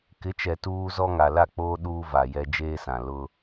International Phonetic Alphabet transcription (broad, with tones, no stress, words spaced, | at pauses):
kɪ˨˦t͡ʃɛ˨ tuː˦zɔ˦ ŋa˨la˦˨k͡poː˦ ɗuː˦ va˨jɛ˦ d͡ʒeː˦sã˨ lʊ˦